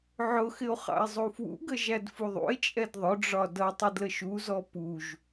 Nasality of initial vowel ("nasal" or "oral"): oral